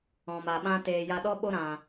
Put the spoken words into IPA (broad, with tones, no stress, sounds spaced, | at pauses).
ɔ̃˨ m a˨ ɓ ã˦ t eː˧ j a˦ ɗ ɔ˦ ɓ o˦ ɾ ã˧